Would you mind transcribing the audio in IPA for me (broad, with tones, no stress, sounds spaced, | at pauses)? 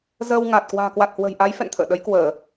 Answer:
z əː˧ w ŋ a˨˩ t̚ k w a̤ː˨˩ k w a˨˩ t̚ h w ə̤˨˩ j ʔ a˨˦ j f ɛ̰˧˨ n t̪ʰ ə̰ː˧˨ ɗ ə˨˦ j k w əː˧˩˨